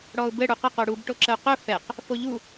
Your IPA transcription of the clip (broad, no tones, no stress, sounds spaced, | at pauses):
ɽ ɔ ʊ̯ b ɘ ɽ u q ə q o ɽ u b ʈ o ǁ ə ʊ̯ q ɵ f ɛ q | f o ʎ u